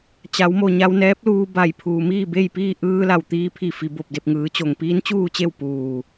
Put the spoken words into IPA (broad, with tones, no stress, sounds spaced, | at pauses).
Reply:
t͡ɕ a˩˧ w m o˩ ɲ a˧ w n ɛː˧˥ p̚ l uː˧ b a˧˩ j pʰ uː˩ m iː˥˨ b e˥˨ j p iː˥˨ ʔ ɯː˧ l a˧˩ w t̪ iː˧ pʰ i˧˩ f i˩ b o˧˩ p̚ d e˧˩ p̚ ŋ ɯː˩˧ t͡ɕ o˩ ŋ p iː˧˥ n t͡ɕ uː˥˨ t͡ɕ e˥˨ w p uː˧˩